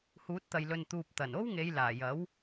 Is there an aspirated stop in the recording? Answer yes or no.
no